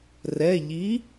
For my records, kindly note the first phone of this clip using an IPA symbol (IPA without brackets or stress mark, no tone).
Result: r